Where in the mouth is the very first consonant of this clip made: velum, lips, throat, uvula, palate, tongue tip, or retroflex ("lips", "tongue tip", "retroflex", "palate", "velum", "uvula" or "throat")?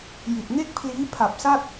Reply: palate